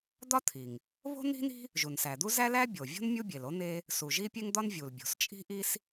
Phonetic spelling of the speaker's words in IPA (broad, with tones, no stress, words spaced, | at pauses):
d̪ɒ˥t̪ʰi˩ŋ | βo̤˥n̪i̤˥ni̤˥ | ʒu˩nsæ˩d̪u˥ zæ˥læ˥bʲo˩vʲo̤˥n mʲu˥bʲe˩lo˥ n̪e˥ | su˩ʒi˥pʲe˥ŋd̪ɒ˥n vʲu˩lbʲo̤˩st͡ʃʼi̤˥ ʔi˥s